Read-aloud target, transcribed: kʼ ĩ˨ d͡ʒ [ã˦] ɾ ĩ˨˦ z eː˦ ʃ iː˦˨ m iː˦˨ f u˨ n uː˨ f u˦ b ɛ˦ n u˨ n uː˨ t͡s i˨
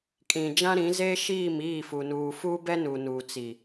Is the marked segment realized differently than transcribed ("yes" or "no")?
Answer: no